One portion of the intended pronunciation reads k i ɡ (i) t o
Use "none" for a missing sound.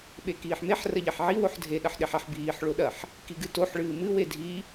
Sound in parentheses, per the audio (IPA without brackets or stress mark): ɨ